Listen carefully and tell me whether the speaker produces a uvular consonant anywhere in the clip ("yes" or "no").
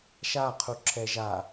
yes